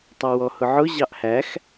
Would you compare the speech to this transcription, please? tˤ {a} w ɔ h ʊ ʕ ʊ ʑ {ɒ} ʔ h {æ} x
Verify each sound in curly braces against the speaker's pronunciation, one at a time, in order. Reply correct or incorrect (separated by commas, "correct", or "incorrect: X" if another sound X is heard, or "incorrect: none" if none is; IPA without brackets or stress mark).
incorrect: ɑ, incorrect: ɑ, correct